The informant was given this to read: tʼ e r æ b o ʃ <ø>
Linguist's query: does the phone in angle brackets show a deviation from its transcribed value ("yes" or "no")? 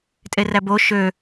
no